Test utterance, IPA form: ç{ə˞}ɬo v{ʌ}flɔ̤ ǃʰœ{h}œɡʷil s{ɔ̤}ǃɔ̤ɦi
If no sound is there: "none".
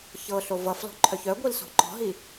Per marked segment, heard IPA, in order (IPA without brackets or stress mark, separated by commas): ɤ, ʌ, ç, ɔ̤